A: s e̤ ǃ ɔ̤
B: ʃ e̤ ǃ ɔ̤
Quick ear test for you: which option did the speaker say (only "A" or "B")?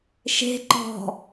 B